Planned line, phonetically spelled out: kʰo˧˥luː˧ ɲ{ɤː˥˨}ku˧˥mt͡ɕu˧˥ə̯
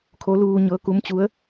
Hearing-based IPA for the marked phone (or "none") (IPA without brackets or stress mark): ɤː˧˥